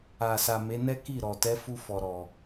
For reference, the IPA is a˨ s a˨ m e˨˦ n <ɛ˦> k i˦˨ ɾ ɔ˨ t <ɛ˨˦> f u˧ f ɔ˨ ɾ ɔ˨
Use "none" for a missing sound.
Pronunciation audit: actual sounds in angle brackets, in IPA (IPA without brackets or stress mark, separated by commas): ɛ˦, ɛ˨˦